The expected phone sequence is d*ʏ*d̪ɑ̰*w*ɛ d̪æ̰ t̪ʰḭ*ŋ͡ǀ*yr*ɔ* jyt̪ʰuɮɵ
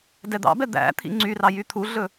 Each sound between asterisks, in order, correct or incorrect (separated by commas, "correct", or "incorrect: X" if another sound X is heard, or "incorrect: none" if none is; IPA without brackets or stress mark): incorrect: ɛ, incorrect: b, correct, incorrect: ɑ